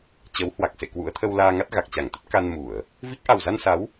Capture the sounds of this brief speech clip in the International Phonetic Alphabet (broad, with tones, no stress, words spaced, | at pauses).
t͡ɕə˨˦whwa˨˩k̚sḛ˧˨ kwṵ˧˥ə̯t̪ʰə˧wlaː˧ŋa˦˥t̚ ɣa˨˩k̚t͡ɕa˧˩ŋt̪ə˦˥t̚ ka˧n mu˧˩˨ə̯ | vi˦˥k̚ ʔa˨˩wza˧nsa˨˦w